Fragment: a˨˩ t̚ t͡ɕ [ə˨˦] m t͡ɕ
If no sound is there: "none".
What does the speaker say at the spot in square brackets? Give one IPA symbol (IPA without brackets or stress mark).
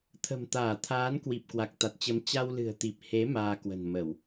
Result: ə˨˦